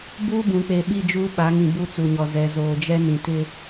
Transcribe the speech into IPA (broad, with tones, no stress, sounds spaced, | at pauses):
b uː˦ b ũ˨ k͡p e˨ ɓ i˦˨ d͡ʒ uː˦ ɓ a˨˦ ŋ ĩ˨ b u˦ t͡s u˨ ɲ ɔ˨ z ɛ˨ z oː˨ d͡ʒ ɛ˦ n ĩ˨ t ɪ˦